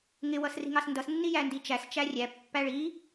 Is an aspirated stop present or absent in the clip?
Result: absent